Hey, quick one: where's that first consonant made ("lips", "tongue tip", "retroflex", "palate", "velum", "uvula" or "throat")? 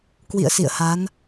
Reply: velum